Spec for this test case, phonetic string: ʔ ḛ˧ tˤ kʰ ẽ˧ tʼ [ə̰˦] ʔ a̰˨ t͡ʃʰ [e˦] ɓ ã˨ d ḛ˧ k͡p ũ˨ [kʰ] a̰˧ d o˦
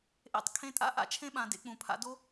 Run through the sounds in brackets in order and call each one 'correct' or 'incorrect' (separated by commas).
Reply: incorrect, incorrect, incorrect